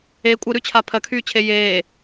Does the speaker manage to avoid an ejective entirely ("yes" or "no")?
no